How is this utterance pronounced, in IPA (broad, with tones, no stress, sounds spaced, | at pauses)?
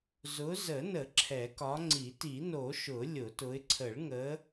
z ʊ˨˦ z ə˨˩˦ n ə˨˩˦ ǁʰ ɛ˨˩˦ k ɒ˨˦ ŋ͡ǀ i˨˩˦ t i˨˩˦ n o˨˩˦ ʃ ʊ˨˩˦ lʲ ʊ˨˩˦ t ʊ˨˦ ɪ̯ ǀʰ ə˨˩˦ ɭ ŋ ə˨˦